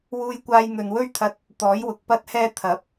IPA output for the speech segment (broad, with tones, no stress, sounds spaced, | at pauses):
w uː˧ j kʷ aː˧ j n̪ ɵ˨ n w ɵ˥ ɥ t̪ʰ ɐ˧ t̚ | t̪ ɔː˨˥ j w ʊ˨˥ k̚ p ɐ˥ t̚ h ɛː˥ t̪ʰ ɐ˨˥ p̚